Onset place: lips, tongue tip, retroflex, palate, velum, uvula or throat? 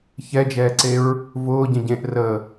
palate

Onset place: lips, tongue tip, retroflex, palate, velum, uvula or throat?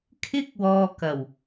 velum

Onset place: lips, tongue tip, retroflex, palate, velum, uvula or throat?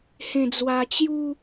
throat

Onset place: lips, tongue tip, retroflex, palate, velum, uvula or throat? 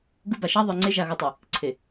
velum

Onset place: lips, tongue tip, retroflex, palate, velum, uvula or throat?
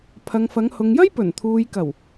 lips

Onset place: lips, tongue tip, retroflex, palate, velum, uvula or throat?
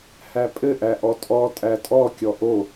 throat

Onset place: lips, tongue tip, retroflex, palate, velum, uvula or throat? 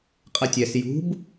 uvula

